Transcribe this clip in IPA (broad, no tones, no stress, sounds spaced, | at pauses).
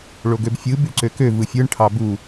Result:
ɭ o ɡ ø b fʲ ɯ b y ǀ ø k ø v ɯ fʲ ɯ ɳ ʈʰ ɑ b u